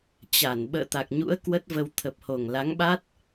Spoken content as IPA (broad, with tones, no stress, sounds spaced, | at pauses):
t͡ɕ a˧˩ n ɓ ə̰ː˧˨ t̪ a˨˩ k̚ ɲ ṵ˧˥ ə̯ k w ə˦˥ t̚ v ə˧ w t̪ʰ ə˨˩ p̚ h o˨˩ ŋ l a˨˦ ŋ ɓ a˦˥ t̚